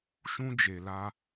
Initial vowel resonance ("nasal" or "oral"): nasal